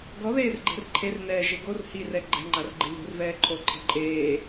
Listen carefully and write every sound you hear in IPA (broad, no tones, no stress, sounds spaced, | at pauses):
ɡ ɔ ð eː r ɡ͡ǃ ɛ̤ r ǃʰ e r n ɛː ʒ e ɡ o r h i r ɛ ɡ͡ǃ ɛ̤ ŋ͡ǃ a r ɡ͡ǃ ɪ ð ṳ r v ɛː ǃʰ o ǃʰ ɛ̤ ǃʼ eː